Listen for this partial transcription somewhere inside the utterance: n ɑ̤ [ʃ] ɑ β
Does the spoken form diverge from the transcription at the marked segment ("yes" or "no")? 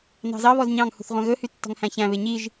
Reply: yes